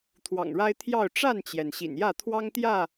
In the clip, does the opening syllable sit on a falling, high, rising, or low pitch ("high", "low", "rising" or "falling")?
low